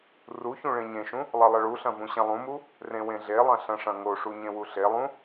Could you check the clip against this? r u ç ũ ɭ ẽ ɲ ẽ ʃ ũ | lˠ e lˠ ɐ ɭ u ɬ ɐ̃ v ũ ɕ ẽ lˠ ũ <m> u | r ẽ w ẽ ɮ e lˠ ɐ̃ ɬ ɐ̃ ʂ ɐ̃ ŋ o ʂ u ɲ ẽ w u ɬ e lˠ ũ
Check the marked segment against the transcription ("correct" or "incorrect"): correct